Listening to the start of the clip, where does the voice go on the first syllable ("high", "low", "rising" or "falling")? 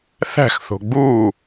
falling